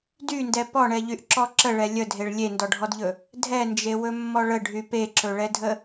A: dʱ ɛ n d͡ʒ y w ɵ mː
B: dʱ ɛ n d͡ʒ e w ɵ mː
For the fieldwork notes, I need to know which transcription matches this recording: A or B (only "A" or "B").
B